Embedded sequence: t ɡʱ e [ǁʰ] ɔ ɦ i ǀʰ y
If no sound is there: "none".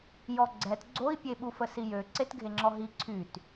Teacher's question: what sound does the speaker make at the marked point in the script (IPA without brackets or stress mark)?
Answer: ŋ͡ǁ